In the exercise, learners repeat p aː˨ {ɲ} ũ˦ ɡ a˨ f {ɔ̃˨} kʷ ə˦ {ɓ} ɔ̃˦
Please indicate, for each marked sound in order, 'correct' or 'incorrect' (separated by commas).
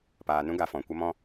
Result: incorrect, correct, incorrect